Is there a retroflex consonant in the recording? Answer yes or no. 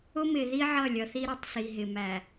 no